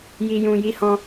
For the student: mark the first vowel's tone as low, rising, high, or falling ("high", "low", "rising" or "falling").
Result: low